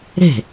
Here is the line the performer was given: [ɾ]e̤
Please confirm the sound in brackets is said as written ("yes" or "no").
yes